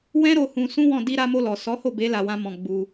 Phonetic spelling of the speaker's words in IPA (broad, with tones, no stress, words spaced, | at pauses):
wɛ̃˦ɾo˧ hũ˧sũ˦wɔ̃˦˨ di˧ɾa˧mo˧lɔ˨ sɔ˨˦ho˦˨be˨˦ la˧wã˦mɔ̃˧ ɡ͡bu˧